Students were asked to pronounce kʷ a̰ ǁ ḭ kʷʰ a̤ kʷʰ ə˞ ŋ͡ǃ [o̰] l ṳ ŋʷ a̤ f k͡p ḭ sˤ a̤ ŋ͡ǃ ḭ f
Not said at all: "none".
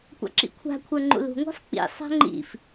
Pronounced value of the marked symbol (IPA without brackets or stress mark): ṵ